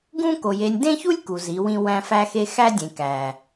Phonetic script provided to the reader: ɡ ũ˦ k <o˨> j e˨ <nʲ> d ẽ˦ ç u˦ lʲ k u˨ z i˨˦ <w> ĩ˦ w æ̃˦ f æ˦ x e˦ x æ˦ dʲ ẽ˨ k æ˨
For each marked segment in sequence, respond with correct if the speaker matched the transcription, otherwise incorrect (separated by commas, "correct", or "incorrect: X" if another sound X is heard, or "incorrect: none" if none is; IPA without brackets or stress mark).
correct, correct, correct